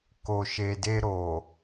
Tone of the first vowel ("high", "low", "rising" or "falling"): low